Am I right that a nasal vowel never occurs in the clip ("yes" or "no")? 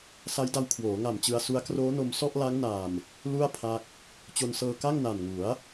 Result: yes